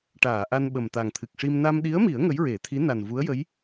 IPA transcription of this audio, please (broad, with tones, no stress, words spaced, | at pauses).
ʈaː˨˩˨ʔa˧n ɓə˨˩mt̪a˨˩ŋ t̪ʰɨ˨˩k̚ʂi˧m na˧m ɗi˧˥ə̯mi˨˩˦ə̯ ŋə˧˥jɹe˨˩˦t̪ʰi˧˥ na˨˩nvu˧˥ə̯jə˧˥j